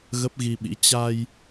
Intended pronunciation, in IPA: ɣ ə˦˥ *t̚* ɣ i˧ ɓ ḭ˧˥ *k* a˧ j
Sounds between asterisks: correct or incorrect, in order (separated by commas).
incorrect, incorrect